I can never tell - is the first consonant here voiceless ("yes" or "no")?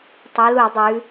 yes